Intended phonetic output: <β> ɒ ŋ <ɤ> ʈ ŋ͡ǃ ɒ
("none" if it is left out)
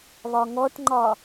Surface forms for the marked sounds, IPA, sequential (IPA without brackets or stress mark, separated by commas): β, ɔ